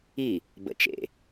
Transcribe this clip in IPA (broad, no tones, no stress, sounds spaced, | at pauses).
i | b ə̰ t͡ʃ ḛ